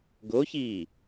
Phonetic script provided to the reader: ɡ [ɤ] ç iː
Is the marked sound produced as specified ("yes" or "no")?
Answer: no